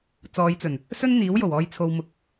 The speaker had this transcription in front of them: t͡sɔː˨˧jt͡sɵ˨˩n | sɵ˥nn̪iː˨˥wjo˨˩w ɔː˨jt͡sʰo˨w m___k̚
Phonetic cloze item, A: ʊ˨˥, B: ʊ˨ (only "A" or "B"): B